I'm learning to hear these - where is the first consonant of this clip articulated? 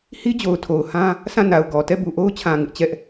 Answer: throat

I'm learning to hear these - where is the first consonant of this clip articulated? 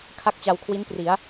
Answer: velum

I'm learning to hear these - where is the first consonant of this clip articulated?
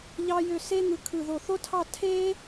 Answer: palate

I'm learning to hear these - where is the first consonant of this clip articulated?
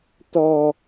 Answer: tongue tip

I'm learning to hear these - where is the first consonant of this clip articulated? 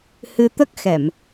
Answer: throat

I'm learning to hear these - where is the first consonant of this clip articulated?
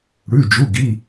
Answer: retroflex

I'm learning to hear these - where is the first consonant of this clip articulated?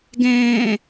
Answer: velum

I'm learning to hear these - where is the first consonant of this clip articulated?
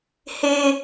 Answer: throat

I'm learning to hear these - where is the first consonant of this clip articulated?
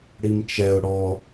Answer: retroflex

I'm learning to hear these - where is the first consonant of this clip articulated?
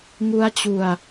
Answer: velum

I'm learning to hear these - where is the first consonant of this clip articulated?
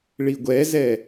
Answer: retroflex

